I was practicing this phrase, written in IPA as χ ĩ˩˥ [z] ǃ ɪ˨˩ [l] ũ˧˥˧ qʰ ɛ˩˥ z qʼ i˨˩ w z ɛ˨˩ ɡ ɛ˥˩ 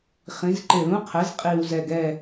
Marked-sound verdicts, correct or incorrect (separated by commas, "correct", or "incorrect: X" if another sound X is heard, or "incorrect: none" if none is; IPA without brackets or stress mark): correct, correct